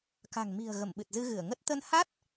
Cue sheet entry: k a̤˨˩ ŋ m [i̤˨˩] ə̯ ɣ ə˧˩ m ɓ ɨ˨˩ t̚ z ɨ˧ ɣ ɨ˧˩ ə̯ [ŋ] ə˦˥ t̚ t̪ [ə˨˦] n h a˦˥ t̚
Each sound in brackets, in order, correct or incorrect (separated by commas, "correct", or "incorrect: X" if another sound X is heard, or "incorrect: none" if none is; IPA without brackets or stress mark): correct, correct, incorrect: ə˧